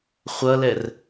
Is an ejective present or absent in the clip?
absent